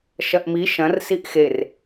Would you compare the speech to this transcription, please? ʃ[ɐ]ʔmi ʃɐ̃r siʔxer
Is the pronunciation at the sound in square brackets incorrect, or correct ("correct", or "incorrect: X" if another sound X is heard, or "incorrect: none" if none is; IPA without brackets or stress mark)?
correct